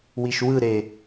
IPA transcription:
wiʃwɯɾe

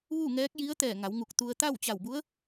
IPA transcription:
ʋu˥˨ŋɛː˧˥k̚ ji˧˥ə̯t̪ɛː˧˩ ŋa˩˧wŋu˧˩k̚t̪u˧ə̯ t̪a˥˨w t͡ɕa˧˩wbu˧˥ə̯

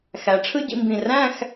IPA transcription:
xæ˩˧ ʈ͡ʂʰɯ˥ɟḭ˧mbĩ˧˩ ræ̃˥˧x

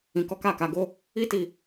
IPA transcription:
ĩ˧kɔ˦ ka˦˨ka˨˦ɡo˦ | i˦ti˧

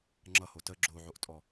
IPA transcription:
ŋ͡ǁʌho tə ɡ͡ǁoʕoʔtʼɔ

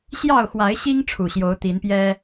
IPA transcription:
ɕjɑ˥˨ʊ̯xwa˨˦ɪ̯ɕi˦ŋ ʈ͡ʂʰu˨˩ɕjo˨˦ʊ̯ t̪i˨˦npjɛ˦

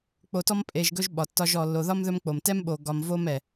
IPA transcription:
k͡po˨tɔ˦m pʼe˨ʒɡɵ˦ʒ ɓɒ˩ tːɒ˦ʒɔ˨ lːo˨ðɒ˥mðɵ˦m k͡po˩mtɛ˥mɓo˨ ɡɒ˨m vo˥mɛ˩

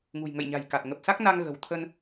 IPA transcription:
ŋṳ˨˩jŋə̰˧˨jɲa̤˨˩jka˨˩t̚ ŋə˨˩p̚sa˦˥k̚na˧ŋ ɣə̤˨˩wt̪ʰə˧n

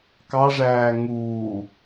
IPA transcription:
kɑʐæː ŋuː

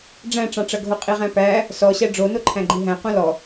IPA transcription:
ɖ͡ʐæ̃ʈ͡ʂɑ̃ʈ͡ʂɐɡʱo qʼiʁæ̃pæ | sɔɕæ ɖ͡ʐonoǃʰæ̃ɡ͡ǃi ɦæ̃ qõlɔ

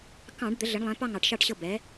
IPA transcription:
kɑ̃˧˩˧ɖ d̪ə˩˥ɮə˩˥ɳlˠɛ̃˩˥ pɑ˥˨ŋɑ˧˩˧ʈʃɑ˥˨ʈɕɤ˥˨ bɛ˩˥

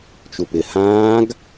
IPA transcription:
t͡ʃupɪ hãːɡ

